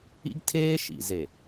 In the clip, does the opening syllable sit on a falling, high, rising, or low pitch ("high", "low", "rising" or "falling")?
high